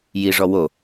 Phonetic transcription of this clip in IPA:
j i ʐ ɔ w o

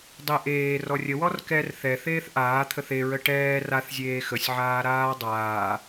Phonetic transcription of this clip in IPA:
dˤ ɪ ʔ eː r ɔ rʲ ə w ɔ r k ɛ r θ ɛ θ eː θ ʔ aː t̪ʰ ə θ e ɹ ə ʈ ɛː r a θ zʲ eː x ə sʲ ʕ aː ɾ aː dˤ aː

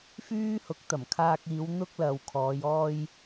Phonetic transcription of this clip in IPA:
f yː˥ h ʊ˨˥ k̚ t̪ ɐ˨˩ m kʰ aː˧ k̚ iː˨˧ w n̪ ʊ˥ k̚ l ɐ˨ w kʰ ɔː˨˧ j ɔː˧ j

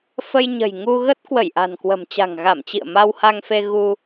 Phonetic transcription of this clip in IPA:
f ə˧ j ɲ ə̤˨˩ j ŋ u˧ ɣ ə˦˥ t̚ k w ə˧˩ j ʔ a̤˨˩ n k w ə̤˨˩ m t͡ɕ a̤˨˩ ŋ ɣ a˧˩ m t͡ɕ ḭ˧˨ ə̯ m a˧ w h a˧ ŋ f e˧ ɣ u˧

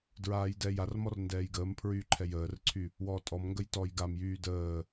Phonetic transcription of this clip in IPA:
d ɹ aː j d ɛː j a r m ɔ r n d ɛː j ɡ əː m pʰ ɹ yː ǃʰ ɛ j əː r ǀʰ y | w ɔː tʼ ɔ m ŋ ɡ ə j t ɔː j ɡ a m j yː d əː

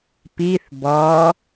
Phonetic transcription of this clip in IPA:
p i θ b ɔ

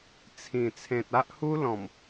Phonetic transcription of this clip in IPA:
t͡sʰ ĩ˨˩ t͡sʰ ẽ˨ t̚ a˦ ʔ h u˦ l ɔ̃˨˩ m

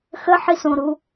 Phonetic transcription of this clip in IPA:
x ə ħ i s õ ɾ u

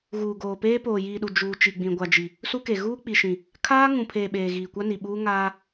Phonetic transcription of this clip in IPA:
ɣ uː˨ ɡ oː˨ p eː˦ p oː˨ j iː˨ ɗ u˨ d͡ʒ uː˨ t͡ʃ i˨ ɡ͡b ĩ˨ ɡʷ a˨ d͡ʒ i˨ | s u˦ k e˨ ɣ uː˦ k͡p i˨ ʃ ĩ˨ | kʰ aː˦ ŋ ũ˨ pʰ eː˨ ɓ eː˨ ɣ iː˨ kʷ a˦ n i˨ ɓ uː˦ ŋ aː˦

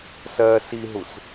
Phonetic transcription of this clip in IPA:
s ɜ s i ɦ u s

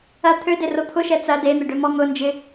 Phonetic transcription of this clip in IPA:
ɐ t̪ʰ ø d e r o t̪ʰ ʊ ʃ ɛ t͡s ɐ d e n̪ ɪ ɖ ø m ɔ ŋ ʊ n d͡ʒ ɪ

